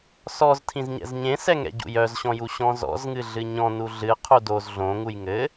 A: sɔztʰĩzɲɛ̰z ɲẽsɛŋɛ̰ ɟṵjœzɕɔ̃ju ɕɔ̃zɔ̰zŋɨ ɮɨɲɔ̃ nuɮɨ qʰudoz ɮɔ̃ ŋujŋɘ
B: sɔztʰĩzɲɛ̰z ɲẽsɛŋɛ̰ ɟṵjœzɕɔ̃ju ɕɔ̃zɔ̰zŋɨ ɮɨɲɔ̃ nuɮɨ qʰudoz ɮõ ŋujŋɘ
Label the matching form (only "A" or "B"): B